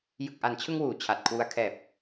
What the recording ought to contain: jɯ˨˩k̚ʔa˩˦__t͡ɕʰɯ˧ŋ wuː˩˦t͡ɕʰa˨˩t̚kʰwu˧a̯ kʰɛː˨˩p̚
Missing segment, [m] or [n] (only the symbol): n